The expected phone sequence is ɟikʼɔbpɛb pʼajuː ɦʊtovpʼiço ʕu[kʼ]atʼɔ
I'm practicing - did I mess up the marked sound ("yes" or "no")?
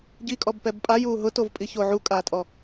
no